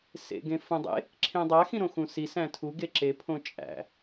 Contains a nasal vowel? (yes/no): yes